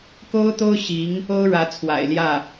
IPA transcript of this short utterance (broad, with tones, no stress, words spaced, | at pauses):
ko˥ʊ̯t̪o˥ʊ̯ ɕi˧˥ŋ | o˥ʊ̯ɻä˧˥t͡sʰwa̰˨˩ɪ̯ljä˥˩